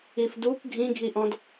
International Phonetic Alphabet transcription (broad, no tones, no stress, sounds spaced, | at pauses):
i f d u k ɡʱ ĩ ɡʱ i ʔ ɔ̃ d